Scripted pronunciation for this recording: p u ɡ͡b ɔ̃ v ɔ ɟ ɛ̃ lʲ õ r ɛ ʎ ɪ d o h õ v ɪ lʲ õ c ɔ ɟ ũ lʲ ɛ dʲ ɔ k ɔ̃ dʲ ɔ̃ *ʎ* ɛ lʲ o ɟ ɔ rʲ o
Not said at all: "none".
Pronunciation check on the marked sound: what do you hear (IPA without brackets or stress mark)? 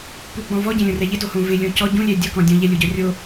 ʎ